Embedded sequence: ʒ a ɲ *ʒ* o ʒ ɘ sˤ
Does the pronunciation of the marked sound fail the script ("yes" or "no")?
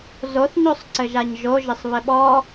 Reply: no